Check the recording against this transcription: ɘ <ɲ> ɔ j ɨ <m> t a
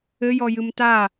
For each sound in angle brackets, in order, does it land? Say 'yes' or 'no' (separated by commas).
no, yes